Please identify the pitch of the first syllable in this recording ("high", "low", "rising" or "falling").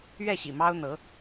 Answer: falling